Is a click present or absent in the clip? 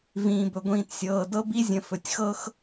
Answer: absent